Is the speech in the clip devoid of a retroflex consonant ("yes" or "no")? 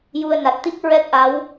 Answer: yes